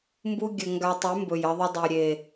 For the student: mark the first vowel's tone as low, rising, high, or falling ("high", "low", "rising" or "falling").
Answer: high